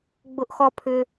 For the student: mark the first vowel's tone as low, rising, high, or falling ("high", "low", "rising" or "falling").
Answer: high